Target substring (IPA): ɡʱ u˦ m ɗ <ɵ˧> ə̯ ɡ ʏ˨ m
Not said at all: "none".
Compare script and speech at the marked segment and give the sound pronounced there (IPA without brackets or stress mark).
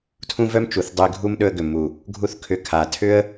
ɵ˧